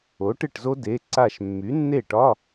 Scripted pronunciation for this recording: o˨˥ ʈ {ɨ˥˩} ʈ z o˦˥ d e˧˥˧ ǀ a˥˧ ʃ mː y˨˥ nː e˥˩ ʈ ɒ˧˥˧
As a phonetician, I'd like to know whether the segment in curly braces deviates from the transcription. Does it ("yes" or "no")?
no